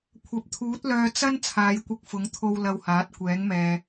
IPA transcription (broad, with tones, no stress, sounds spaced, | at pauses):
kʷʰ ɐ˨ p̚ t̪ʰ uː˨˥ t̚ l œː˧ t͡s ɐ˥ n t͡sʰ aː˨˧ j kʷ ɪ˧ k̚ f ʊ˨˥ ŋ t̪ʰ o˧ w l ɐ˧ w h aː˨˥ t̚ kʷ ɛː˨˥ ŋ m ɛː˨